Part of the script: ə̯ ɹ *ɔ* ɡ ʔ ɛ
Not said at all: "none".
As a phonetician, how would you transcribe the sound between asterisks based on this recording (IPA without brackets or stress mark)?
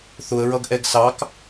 ʌ